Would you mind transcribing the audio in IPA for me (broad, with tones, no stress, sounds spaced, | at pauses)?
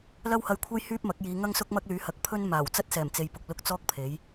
l ɐ˥ w h ɐ˧ j kʷʰ ɐ˥ j h yː˥ p̚ m ɐ˨˥ k̚ j iː˨˧ ŋ ɐ˥ ŋ s ʊ˥ k̚ m ɐ˥ k̚ l yː˨˥ h ɐ˨ k̚ pʰ ɵ˥ n m aː˨˩ w t͡s ɐ˥ t̚ s ɛː˨˩ m t͡s e˨ j p ʊ˨ k̚ l ʊ˧ k̚ t͡s ɔː˥ k̚ pʰ e˨˥ j